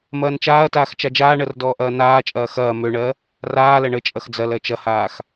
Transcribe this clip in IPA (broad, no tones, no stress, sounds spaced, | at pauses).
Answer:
m ɐː n t͡ʃ aː ɐ̯ t aː x t͡ʃ a d͡ʒ aː ɳ ɜ r d ɔː ʔ ɐː n aː t͡ʃʼ ɐː x ɐː m ø ɳ ɜ | r aː l ɐ ɳ ə t͡ʃʼ ɐ x d͡z ɐ l ɜ t͡ʃ ɐ h aː x